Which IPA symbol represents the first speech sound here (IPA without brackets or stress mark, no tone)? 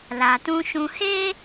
l